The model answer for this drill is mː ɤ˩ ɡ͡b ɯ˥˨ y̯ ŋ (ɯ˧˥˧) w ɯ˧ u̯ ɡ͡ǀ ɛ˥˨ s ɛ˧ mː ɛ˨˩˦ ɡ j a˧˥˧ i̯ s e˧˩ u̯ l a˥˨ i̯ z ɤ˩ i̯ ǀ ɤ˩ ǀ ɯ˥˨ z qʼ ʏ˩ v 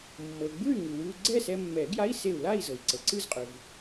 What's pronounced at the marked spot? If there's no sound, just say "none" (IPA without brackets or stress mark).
ɯ˩